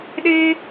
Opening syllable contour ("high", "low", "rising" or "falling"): high